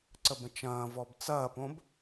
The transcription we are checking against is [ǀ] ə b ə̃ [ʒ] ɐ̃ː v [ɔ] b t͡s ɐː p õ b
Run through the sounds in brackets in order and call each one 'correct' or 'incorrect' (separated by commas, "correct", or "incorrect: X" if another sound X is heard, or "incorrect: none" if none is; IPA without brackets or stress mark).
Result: correct, incorrect: t͡ʃ, correct